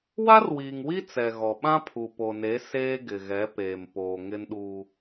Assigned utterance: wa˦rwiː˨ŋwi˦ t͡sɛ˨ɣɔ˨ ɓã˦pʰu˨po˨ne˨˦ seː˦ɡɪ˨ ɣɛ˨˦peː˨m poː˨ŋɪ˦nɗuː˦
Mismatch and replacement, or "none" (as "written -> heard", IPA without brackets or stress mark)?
none